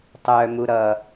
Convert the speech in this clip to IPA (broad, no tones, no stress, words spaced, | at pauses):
tˤœmu ɾʌ